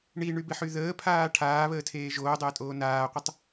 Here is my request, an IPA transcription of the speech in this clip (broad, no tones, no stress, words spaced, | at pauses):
ɳiɳybɪħy ðəːpʰaː ʈʰaːβəːtʰeː ʒoːdˤəːtʼoː naːqʷətˤ